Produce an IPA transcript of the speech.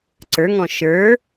ǀə˞ŋɔ̃ ʃə˞

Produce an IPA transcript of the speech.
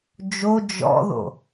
d͡ʒo d͡ʒɔ̰ðo̰

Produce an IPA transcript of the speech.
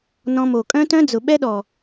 nɔ̃˧mo˨ kʼœ̃˦tœ̃˦d͡zʊ˨ ɓɛ˦ɗɔ˨

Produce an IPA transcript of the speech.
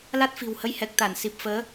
la˦˥t̚fi̤˨˩whə˨˦jhɛ˨˩k̚ t̪a˧˩nsi˨˩p̚fəː˨˦

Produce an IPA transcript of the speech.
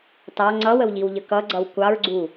tɑ ŋ͡ǀʌwəwʎiwʎə kʌɡ͡ǀʌw kʷɑɹɡ͡ǀu

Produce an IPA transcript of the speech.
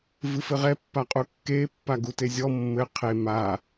vɨfɘʁɛ pːaqʼukːe pːaɡutezʲɔ mːɘ qʰe ma

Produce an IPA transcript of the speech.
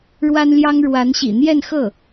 ɻwa˥nljɑ˥ŋ ɻwa˧˥nɕḭ˨˩ n̪jɛ˥˧nxɤ˥˩

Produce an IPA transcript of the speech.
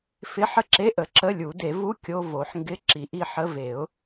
fɪ˧˥˧ħə˥˨ǁe˧˥˧ʔə˨˩˦ ǁə˧˥˧lʲu˨˩˦ de˨˩˦vu˧˥˧ kʲo˧˥˧vo˨˩˦ħŋɡɪ˧˥˧ ǁi˨˩˦ʔi˥˨ħə˧˥˧ ve˨˩˦ʊ̯

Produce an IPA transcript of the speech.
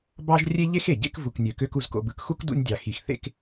bɑ˥ʒ rʲe˥ʎe˥xe˩ɟḛ˥k vu˧knʲø˧kø˥k u˧zko̰˧bɯ˧kxu˥k dṵ˥nʲdʲɑ˧ xi˧xθḛ˥k

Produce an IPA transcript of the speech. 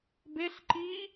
beɬǃiː

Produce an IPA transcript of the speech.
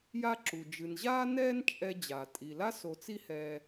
ja˥ǁu˩ d͡ʒɨ˩nʑaː˥ nɛː˥nt͡ʃʼɛ˧d͡ʑa˩ tʼi˩ la˥s o˧t͡si˥hɛː˧

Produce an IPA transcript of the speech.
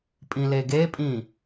pʼĩleɡepʼĩ

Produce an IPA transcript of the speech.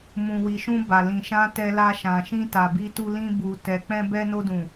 mũ˨wi˨ʃũ˧ ba˨ lĩ˨ʃã˧ tɛ˧la˧ʃã˨ ʃĩ˧ta˨bi˧tu˧ lĩ˧bu˨ tɛ˨k͡pɛ̃˧ bɛ˧no˧dũ˨

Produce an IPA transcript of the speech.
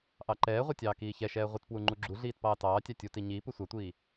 ʔɑǃɛːʁʷə˞ tʲɑːkiːçɛʃɛː ʁʷɪtpwu ŋ͡ǃuɡ͡ǁuɮiːt pɑːtɑːtʲɑ tʲuti ɲiːpu sʷɑtʷiː

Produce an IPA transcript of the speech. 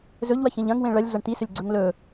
zɵʎwɐçẽʎ ɐ̃ŋwẽ ɭɐlʲɮɐɳ t̪isɵlʲɡ͡ǀɵŋ lɵ

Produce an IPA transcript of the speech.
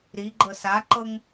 ɾiɡ͡ǃɤ saǃɤŋ

